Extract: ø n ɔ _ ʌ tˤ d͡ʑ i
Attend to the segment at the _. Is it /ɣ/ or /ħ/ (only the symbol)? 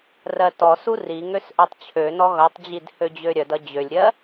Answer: ɣ